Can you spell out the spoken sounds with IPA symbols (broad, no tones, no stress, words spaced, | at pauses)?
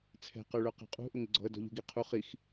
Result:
t͡sʰɛ̤ qə˞ɭə˞qɛ̤qʼṳ ʔʊŋɪɡ͡ǀɔ̤ə̯ dɔ̤ʎṳɡiqʰu χix